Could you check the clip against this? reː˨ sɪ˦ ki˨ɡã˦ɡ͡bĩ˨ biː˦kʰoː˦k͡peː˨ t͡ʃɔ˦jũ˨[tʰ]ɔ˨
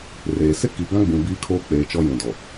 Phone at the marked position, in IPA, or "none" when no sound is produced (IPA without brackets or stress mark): d